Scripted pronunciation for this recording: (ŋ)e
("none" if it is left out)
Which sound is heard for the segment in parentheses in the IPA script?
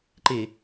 ǃ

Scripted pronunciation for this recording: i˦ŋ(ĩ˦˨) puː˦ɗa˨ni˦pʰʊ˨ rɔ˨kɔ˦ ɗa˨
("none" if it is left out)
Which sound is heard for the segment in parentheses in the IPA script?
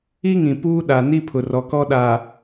ĩ˨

